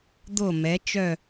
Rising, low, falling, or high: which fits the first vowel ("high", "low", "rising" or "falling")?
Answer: falling